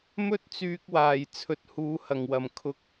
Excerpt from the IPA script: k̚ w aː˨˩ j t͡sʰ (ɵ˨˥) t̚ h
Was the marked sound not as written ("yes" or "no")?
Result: no